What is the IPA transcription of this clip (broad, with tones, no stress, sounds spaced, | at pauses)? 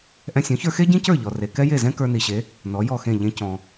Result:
ʔ ɛ̃˧ sʲ ɔ̃˩˥ ç ə˞˧ x e˥ ɟ ĩ˥ c ə˞˥˩ ʎ ɔ˩ r e˩ k ɛ˥ j e˥˩ z ɛ̃˥ k ə˞˧ n i˩ ɕ e˩˥ | n ɔ˩˥ j ɔ˥˩ x ẽ˥˩ ʎ ẽ˧ c ɔ̃˩